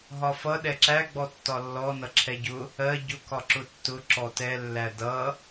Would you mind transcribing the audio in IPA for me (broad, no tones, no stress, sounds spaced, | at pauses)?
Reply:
ɦ ɒ f ʌ ɗ ɛ ǁ æ ɡ͡b ɔ tː ɒ lː ɔ n ʌ ǁʰ ɛ ɟ ʊ | ɜ ɟ ʊ k ɒ ǁ ʊ tː ʊ ǁ ɔ t ɛ lː æ d ʌ